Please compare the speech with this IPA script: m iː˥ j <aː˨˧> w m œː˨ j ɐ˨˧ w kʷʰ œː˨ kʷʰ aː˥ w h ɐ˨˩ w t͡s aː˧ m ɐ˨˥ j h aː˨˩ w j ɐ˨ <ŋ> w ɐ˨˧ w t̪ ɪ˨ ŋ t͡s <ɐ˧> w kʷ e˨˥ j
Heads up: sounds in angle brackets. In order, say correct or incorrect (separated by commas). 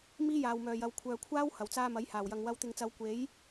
incorrect, correct, incorrect